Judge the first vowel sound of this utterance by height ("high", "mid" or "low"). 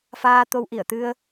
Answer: low